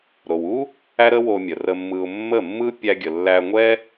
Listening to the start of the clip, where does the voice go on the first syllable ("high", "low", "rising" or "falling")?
low